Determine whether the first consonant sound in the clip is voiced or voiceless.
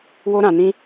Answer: voiced